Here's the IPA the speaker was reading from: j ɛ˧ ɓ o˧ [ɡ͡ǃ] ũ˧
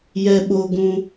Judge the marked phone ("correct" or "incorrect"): incorrect